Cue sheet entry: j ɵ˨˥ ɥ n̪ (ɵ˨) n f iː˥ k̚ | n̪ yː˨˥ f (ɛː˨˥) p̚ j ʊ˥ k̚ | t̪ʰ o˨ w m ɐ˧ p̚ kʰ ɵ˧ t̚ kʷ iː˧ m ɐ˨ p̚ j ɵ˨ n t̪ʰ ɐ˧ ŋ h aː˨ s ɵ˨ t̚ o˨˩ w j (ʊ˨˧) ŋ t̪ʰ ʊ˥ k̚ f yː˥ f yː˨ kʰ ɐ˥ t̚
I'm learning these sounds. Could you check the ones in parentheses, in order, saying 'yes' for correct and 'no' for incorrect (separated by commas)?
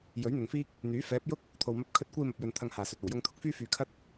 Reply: yes, yes, no